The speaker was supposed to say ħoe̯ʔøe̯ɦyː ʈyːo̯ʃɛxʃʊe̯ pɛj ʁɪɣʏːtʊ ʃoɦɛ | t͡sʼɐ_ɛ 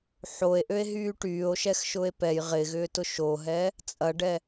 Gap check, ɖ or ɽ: ɖ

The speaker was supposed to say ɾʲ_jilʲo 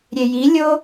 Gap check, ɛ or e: e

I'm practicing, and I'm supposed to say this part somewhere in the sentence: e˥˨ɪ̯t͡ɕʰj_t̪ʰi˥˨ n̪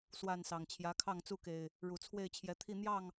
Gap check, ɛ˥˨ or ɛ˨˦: ɛ˨˦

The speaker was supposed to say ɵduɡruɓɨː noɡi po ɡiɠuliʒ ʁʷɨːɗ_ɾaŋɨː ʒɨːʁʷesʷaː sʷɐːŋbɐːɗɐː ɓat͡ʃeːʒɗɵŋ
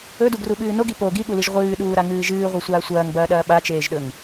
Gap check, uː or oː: uː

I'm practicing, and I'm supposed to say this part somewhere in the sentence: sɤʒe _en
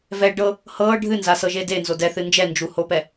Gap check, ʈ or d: d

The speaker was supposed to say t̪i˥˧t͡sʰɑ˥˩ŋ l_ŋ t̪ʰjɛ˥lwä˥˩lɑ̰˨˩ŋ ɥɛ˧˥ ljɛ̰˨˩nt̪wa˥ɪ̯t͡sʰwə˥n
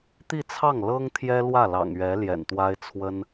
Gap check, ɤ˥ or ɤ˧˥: ɤ˥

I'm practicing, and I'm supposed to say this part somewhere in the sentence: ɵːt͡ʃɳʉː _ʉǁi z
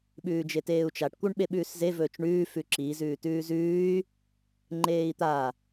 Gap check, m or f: f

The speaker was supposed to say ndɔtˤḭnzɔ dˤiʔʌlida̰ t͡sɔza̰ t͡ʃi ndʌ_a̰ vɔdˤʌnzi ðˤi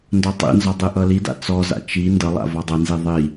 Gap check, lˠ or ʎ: lˠ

